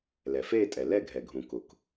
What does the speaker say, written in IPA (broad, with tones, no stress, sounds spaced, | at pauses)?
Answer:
l ɛ˩ f eː˥˧ tʼ ɛ˩ l ɛ˥˧ ɡʱ ɛ˩ ɡʱ ũ˩ k ʊ˩ k